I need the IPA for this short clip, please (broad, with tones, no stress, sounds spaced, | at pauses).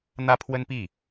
n̪ ä˥ pʰ w ə˥ n p i˥˩